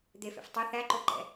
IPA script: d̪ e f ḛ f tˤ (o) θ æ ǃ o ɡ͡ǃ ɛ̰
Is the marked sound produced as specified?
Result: no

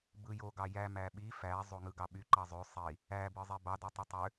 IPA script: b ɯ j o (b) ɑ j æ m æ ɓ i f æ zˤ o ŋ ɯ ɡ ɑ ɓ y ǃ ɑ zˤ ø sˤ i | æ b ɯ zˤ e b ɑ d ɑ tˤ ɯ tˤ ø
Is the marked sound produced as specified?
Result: no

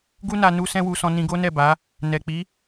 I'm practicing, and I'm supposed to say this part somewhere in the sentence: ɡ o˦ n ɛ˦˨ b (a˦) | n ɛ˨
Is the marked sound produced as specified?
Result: no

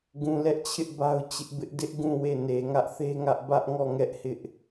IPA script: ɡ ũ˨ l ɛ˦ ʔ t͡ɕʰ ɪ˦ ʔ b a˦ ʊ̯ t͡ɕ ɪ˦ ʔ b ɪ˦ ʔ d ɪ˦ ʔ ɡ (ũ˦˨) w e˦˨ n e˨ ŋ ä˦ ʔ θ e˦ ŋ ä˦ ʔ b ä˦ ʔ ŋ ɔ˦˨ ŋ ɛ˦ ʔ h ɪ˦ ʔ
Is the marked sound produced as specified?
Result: yes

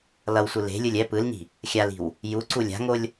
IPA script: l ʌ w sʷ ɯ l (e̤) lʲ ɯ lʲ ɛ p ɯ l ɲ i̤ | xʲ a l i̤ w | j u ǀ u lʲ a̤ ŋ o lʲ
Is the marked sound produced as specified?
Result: yes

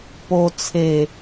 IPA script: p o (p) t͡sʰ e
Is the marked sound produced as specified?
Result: no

